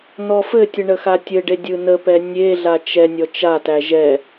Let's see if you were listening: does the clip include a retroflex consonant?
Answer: yes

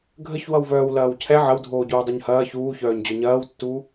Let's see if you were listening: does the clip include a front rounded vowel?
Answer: yes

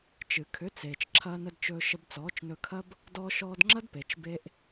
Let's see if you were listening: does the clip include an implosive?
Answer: no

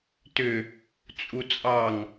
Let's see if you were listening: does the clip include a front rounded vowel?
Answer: yes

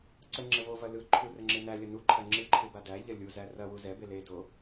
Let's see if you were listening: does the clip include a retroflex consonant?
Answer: no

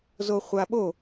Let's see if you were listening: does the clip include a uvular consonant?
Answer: yes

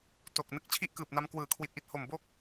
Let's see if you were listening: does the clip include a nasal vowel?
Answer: no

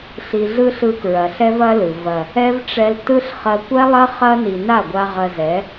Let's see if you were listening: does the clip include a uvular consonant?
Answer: yes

